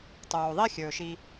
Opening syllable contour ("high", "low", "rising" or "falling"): low